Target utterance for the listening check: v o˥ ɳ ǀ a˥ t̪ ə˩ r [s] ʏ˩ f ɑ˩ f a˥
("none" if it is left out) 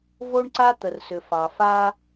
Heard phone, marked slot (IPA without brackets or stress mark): s